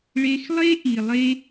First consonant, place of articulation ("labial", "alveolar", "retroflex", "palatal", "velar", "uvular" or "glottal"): retroflex